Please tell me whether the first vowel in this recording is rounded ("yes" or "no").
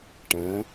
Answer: no